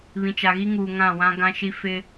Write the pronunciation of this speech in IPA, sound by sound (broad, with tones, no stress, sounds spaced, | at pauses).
β ĩ˨ t͡ʃ a˨ ɣ i˦ ŋ uː˨ ŋ ã˦˨ w ã˦ ɡ ã˦ ʃ i˦ f ɪ˦